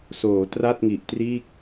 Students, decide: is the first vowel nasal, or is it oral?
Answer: oral